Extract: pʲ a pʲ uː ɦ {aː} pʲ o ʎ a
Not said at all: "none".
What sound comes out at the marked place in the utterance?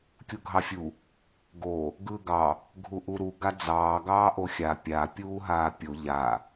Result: aː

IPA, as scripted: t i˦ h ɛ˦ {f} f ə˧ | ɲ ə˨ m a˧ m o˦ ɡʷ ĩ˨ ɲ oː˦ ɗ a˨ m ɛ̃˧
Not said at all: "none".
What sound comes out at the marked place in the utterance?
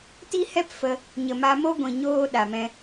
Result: p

